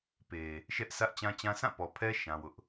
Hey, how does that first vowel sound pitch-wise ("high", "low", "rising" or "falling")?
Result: low